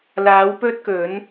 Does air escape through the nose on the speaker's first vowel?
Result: no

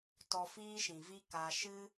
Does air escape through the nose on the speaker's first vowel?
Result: no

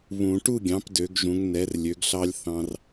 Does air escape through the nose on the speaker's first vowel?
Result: yes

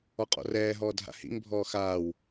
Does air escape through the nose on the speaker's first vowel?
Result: no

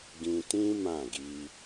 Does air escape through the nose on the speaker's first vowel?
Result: yes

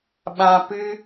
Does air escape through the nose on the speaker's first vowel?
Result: yes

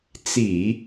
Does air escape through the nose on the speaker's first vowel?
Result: no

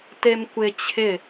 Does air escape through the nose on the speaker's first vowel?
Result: no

